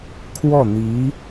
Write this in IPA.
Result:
kʰ w ɔ˥˩ n̪ i˧˥

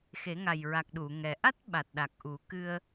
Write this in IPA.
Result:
x e˨˩˦ ŋ a˨˩ j ɹ a˨˩ k̚ ɗ u˨˩˨ ŋ ɛ˨˩ ʔ a˦˥ t̚ ɓ a˨˩ t̚ ɗ a˨˩ k̚ ʔ u˨˩˦ k ɨ˧ ə̯

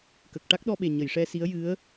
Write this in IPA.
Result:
k ə˨˩ k̚ ʈ a˦˥ k̚ ɗ ɔ˧ ɓ e˨˩ ɲ ə˨˩˨ j ʂ ɛ˧ s i˧˥ ə̯ j ɨ˧˥ ə̯

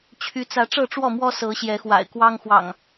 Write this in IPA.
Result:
t͡ɕʰ y˨˦ t͡s ä˨˦ ʈ͡ʂ ɤ˥˨ ʈ͡ʂ w ɔ˥˨ m w ɔ˦ s ɤ˨˦ ɕ j ɛ˨˦ x w a̰˨˩ ɪ̯ k w ɑ˦ ŋ x w ɑ̰˨˩ ŋ

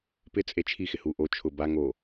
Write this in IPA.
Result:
p ɪ t͡sʼ e t͡ʃʰ i x ɪ h u ʔ o t͡ʃʰ ʊ b a ŋ o

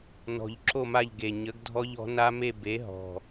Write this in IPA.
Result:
n ɔ̤˨˩ ʎ ǁ o˦˨ m a˦˨ ʎ ɡ e˨˩ ɲ ə˨˥ ɡ dʱ ɔ˦˥ ʎ ɔ̤˨˥ n a˦˥ m e˦˨ b e˨˥ ɦ ɔ̤˨˩

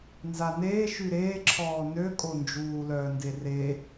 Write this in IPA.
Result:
n z a n eː ʃ y ɾ eː ǁʰ ɔː n ø kʼ o n d͡ʒ uː l œː n d e r e

